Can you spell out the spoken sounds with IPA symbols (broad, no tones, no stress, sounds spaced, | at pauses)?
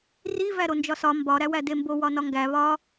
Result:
r i v æ ɾ o n d͡ʒ ɒ s ɒ m b ɒ ɾ æ w æ d e m b o w ɒ n ɒ ŋ ɡ æ β ɒ